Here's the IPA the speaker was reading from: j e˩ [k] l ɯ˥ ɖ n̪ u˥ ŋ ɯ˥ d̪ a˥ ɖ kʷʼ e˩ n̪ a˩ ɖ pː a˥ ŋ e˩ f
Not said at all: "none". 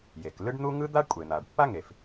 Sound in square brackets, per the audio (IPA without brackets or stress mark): k